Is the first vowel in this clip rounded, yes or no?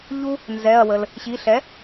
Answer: yes